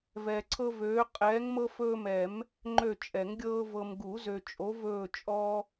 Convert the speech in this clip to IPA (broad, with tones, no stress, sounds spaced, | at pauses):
v ɛː˨ ǀʰ ɤ˦ v øː˨˦ qʼ ɛː˨˦ ŋ m ɤ˦ f ɵː˦ m ɛ˨˩˦ m | ŋ͡ǃ ø˦˨ t͡ʃʼ ɛ˨˩˦ ŋ ɡʲ ɤː˦ v ɤ˨ m ɡ u˨˩˦ z ø˨ t͡ʃʼ o˨˦ v ɵː˦˨ t͡ʃʼ ɔ˦